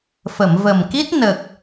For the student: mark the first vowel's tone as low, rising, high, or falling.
low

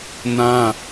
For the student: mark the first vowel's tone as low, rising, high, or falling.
high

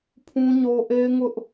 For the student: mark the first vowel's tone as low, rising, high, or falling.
high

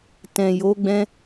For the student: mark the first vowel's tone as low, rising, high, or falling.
low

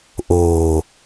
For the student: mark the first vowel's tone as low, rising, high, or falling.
low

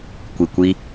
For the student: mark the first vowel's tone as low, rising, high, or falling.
low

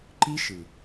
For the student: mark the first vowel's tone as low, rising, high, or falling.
high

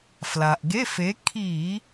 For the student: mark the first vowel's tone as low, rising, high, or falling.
low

